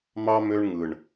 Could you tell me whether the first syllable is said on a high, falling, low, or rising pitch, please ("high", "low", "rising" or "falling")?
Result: high